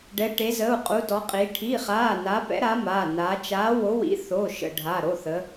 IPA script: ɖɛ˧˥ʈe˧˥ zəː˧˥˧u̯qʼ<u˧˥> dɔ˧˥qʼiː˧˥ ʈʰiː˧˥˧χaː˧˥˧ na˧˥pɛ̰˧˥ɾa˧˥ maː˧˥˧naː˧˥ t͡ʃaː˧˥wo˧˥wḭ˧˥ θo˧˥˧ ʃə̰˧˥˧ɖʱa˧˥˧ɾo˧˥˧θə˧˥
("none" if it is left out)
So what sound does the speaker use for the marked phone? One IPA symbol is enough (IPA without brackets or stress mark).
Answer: u˧˥